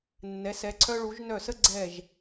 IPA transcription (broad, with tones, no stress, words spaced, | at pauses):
nːɛ˩˧ sɛ˩˧ǀʰœ˧ɭu˩˧ʒnœ˧˩ sə˥˧ɡ͡ǀɛ˧˩ʒ